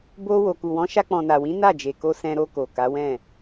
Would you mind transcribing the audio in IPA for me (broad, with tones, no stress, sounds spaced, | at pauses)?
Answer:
b o˧ w o˨ k u˨ w ɔ̃˨˦ ʃ a˧ k͡p ɔ̃˨ n a˨ w ĩ˨˦ n a˦˨ d͡ʒ e˨ k o˧ s ɛ̃˧ ɾ o˧ k o˨ k a˨˦ w ɛ̃˦˨